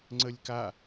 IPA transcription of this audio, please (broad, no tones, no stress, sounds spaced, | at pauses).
ŋ͡ǀ ə lʲ k a